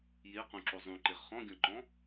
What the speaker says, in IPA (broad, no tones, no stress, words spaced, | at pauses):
jeqũǁo zˤũǃeʁ χɔ̃ɡʲɔ̃ǃɔ̃